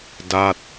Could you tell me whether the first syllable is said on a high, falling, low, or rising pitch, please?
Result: falling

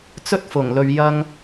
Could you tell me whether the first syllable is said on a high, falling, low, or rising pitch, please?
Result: high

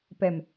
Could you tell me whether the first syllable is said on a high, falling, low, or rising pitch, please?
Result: low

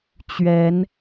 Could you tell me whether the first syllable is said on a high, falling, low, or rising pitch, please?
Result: rising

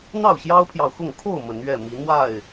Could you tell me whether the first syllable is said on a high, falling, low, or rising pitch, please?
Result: falling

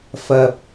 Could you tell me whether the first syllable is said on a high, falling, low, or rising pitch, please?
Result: low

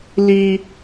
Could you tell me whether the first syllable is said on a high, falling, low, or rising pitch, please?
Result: high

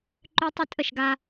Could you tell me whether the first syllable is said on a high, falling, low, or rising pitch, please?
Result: high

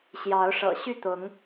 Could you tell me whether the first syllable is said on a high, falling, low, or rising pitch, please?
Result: rising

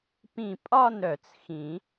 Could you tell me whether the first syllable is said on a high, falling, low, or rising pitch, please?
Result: falling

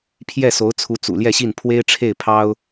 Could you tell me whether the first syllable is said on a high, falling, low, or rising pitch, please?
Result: falling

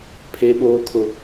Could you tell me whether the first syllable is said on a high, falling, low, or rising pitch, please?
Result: high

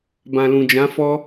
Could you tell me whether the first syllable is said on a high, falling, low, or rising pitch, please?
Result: low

